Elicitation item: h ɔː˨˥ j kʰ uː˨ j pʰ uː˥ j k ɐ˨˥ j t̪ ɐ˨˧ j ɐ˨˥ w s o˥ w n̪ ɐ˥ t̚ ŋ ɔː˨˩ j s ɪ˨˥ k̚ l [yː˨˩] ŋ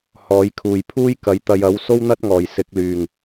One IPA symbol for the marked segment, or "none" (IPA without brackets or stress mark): yː˨˩